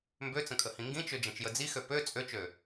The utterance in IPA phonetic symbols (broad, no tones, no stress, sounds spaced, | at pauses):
m b ø t͡s ə̃ kʼ ə h ĩ ŋ ɡ ĩ t͡ʃ ø d͡ʒ ɐ̃ t͡ʃ j ə d͡z i x ø p ø t͡sʼ ø t͡ʃ ø